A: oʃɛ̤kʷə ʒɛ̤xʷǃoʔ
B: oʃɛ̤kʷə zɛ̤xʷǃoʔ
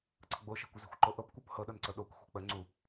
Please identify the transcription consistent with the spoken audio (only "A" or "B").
B